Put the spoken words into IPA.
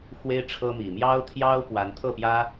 x w e˦ ɪ̯ ʈ͡ʂʰ ɤ˦ m i˨˩ m j ɑ˦ ʊ̯ t̪ʰ j ɑ˦ ʊ̯ p w a˨˦ n t̪ʰ ɤ˥˨ p j ä˦

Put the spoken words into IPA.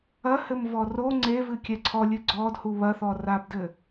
ɐ h ɘ m v ɔ r o ŋ͡ǀ e v ɨ kʲ ɛ ǀʰ ɔ lʲ ɨ ɡ͡ǀ ɔ d h u β ɐ θ ɔ r a b d ɘ

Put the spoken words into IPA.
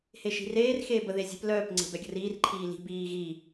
h e ʃ i̤ r eː r x eː b ə ð e zʲ e̤ p l œː p ŋ͡ǀ e̤ b ɛ ɡʲ ə̤ r iː r ǃʰ iː l i̤ b iː ɣ i

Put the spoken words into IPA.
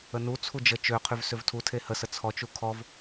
ə n u t͡sʰ u d͡ʒ ə t͡ʃ ø qʰ y v s ø v tʰ u tʰ e h ə s ə t͡sʰ ɔ t͡ʃ u kʰ ɔ v

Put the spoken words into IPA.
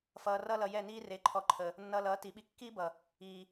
f ʌː˨ r ʌ˧ l ʌ˨ j ɛ˦˨ n iː˦ r e˨˦ ǃʰ ɔ˨ ǃʰ ə˨ | nː ʌː˧ l ʌː˨˦ t i˨ ɓ i˧ kː iː˦ b ʌ˨ | iː˨

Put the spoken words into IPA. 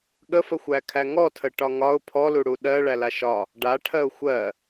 ɠ ə f ə xʷ æ kʰ æ ŋ ɔ tʰ ə ʈ ɒ ŋ ɒ ʊ̯ pʰ ɔ l u ɽ u ɗ ɜ ɭ æ l a ʃ ɒ | ɖ a ʈʰ ɜ ʊ̯ xʷ ɜ

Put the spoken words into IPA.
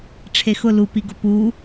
ʈ͡ʂʰ e x ʊ l u p i ɡ ʊ p u

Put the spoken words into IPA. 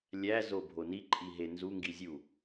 lʲ æ z o bʱ o n i ǃʼ i ɦ e n z u ŋ ɡ i zʲ u

